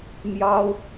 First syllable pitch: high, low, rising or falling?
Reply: high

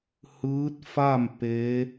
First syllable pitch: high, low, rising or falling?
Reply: rising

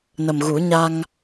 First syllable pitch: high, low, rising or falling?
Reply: low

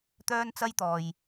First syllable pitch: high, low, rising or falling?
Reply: high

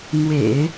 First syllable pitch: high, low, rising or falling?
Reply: low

